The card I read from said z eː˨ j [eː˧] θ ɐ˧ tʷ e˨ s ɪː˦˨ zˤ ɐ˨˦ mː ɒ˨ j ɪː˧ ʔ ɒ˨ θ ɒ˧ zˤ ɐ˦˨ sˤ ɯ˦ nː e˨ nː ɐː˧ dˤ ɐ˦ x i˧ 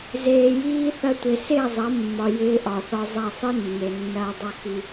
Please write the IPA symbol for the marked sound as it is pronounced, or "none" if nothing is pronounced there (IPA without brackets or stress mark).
iː˧